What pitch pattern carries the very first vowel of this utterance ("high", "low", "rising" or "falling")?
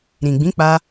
low